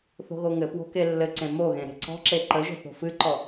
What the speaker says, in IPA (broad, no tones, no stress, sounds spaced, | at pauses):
θ o̤ ɣ o ŋ ɘ p w o̤ k e lː ɘ ǀ ẽ m o ɣ ẽ ɾ e̤ ǀ ɔ̤ ǁ e ǃ ə ʒ ə̤ θ o̤ f ɨ ǃ ɔ